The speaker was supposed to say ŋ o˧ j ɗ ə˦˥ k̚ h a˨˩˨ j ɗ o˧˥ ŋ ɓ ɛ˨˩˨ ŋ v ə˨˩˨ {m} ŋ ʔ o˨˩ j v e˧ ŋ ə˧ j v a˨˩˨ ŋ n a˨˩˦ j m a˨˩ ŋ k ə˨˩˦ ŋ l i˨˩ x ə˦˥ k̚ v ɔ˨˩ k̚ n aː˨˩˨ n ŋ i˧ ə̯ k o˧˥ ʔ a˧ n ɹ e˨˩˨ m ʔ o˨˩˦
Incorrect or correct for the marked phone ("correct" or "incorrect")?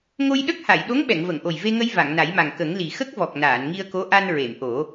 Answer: incorrect